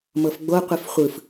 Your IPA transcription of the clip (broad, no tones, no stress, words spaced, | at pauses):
mɤfɡ͡bo qʷifχʷɯf